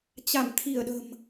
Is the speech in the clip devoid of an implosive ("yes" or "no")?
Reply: no